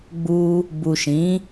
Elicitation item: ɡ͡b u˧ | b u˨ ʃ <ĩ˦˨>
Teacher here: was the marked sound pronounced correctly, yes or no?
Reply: no